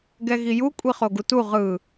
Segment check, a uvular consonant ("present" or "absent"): present